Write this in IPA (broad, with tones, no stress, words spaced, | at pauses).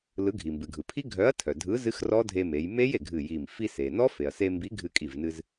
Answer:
lɯ˨˥ɡʱi˩mbɨ˩ɡʱɯ˩ pʰi˦˥ɡʱœ˨˥ɐ̯tʰœ˩ dʱɯ˨˥ zɨ˦˥xrɔ˦˥ dʱe˧me˩˧j me˦˥je˩ ɡʱɨ˧˩ji˧˩m fi˧se˩nɔ˦˥ fe˩ɐ̯se˧mbi˨˥ ɡʱɨ˧kʼi˧˩vnɨ˧z